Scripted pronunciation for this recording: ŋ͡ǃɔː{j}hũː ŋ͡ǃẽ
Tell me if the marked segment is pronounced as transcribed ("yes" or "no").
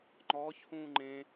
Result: no